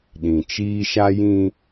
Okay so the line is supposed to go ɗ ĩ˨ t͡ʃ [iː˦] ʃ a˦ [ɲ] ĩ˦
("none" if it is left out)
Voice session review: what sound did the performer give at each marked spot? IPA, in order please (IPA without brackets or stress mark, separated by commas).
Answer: iː˦, j